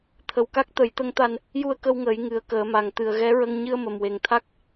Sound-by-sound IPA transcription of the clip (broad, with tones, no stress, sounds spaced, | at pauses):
t̪ʰ ə˨˩˦ w k a˦˥ k̚ t̪ ə˨˩˦ j t̪ ə˧ ŋ t̪ a˧ n | j u˧ ə̯ k ə˧ w ŋ əː˨˩˦ j ŋ ɨ˨˩ ə̯ k əː˨˩˦ m a˨˩ ŋ t̪ ɨ˨˩ ə̯ ɣ ɛ˧˥ ɹ ə˧ ŋ ɲ ɨ˧ ə̯ m ə˨˩ m w e˨˩ ŋ t̪ʰ a˦˥ k̚